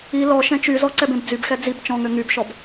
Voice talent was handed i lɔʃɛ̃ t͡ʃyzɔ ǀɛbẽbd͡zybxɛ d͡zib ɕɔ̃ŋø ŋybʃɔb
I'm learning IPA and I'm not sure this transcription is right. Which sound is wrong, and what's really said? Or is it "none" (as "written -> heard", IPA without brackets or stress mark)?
ɕ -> t͡ʃ